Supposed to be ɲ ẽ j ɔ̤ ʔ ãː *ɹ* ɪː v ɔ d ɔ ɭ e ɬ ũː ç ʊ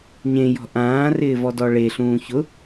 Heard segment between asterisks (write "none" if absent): r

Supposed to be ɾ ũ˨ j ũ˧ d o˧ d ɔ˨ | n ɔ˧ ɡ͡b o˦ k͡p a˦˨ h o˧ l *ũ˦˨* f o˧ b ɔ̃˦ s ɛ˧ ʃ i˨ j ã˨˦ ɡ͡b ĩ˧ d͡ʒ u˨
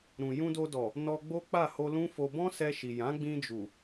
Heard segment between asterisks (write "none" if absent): ũ˦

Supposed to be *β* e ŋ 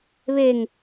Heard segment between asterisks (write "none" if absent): β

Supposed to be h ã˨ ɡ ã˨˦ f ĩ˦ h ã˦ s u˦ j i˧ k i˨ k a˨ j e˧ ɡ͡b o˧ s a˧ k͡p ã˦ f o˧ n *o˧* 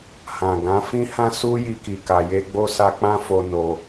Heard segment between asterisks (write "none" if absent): o˧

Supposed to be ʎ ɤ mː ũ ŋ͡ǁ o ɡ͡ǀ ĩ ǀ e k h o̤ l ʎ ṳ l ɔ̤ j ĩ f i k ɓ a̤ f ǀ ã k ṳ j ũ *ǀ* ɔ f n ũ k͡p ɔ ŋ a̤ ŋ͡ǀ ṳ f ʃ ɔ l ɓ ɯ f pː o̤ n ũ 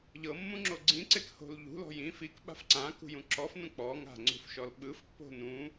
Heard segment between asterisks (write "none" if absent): ǁ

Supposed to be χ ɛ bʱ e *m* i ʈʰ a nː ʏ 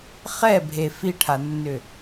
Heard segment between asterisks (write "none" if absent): f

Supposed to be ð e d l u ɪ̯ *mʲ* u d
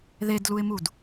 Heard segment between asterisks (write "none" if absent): m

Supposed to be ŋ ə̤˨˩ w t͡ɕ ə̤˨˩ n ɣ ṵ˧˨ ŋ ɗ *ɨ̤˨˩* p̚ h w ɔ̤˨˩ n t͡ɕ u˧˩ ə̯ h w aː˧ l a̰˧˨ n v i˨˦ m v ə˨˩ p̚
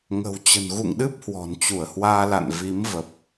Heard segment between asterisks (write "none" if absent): ɨ˦˥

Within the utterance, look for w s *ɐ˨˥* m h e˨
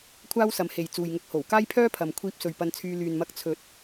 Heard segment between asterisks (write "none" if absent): ɐ˨˧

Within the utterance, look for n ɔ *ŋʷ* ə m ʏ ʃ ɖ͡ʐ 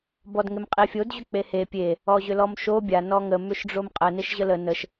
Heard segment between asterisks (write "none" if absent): ŋ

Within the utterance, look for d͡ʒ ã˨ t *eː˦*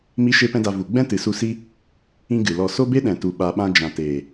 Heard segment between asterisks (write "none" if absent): eː˨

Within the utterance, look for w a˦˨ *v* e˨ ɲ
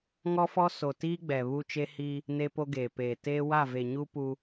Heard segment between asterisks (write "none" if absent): v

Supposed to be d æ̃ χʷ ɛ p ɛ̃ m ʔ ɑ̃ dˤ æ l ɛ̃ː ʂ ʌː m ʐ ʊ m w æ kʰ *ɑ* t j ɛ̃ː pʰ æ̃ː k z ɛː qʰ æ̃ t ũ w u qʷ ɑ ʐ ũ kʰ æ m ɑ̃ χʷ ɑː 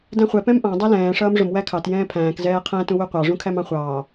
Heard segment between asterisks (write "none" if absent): ɑ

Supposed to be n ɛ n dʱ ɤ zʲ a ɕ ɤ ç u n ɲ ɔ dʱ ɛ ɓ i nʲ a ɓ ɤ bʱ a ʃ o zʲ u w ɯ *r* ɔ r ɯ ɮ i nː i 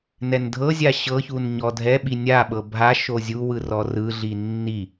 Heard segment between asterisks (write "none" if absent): r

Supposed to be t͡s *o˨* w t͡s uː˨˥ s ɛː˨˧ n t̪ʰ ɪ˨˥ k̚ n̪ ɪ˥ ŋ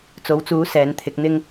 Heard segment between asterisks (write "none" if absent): o˨˥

